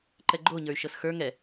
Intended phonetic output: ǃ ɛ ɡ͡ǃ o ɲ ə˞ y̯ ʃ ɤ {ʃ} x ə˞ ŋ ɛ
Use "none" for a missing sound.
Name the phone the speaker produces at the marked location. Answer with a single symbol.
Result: s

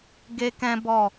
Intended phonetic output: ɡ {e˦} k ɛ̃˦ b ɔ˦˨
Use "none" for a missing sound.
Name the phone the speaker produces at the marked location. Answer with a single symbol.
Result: e˦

